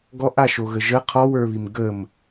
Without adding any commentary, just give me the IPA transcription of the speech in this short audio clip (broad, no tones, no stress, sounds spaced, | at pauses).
ɡ ɔ ʔ a ʃ o ɣ ə ʒ ə qʰ ɔ w ə˞ β i m ɡ ə m